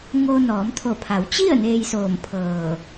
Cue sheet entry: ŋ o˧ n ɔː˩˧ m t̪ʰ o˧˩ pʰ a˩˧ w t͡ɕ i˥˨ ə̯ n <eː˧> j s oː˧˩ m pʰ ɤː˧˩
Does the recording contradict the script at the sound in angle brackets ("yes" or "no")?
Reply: no